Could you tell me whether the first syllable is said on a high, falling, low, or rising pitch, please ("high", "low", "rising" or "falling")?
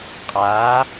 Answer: rising